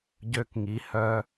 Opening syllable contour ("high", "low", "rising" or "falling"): high